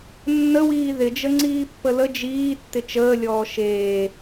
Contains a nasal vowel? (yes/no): no